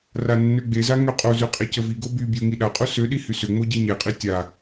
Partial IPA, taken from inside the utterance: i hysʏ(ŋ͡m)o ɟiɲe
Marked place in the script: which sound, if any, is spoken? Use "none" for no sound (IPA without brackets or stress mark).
ŋ͡m